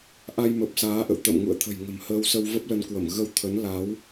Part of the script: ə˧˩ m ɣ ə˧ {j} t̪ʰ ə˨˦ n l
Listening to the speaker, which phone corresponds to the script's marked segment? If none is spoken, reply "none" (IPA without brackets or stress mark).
w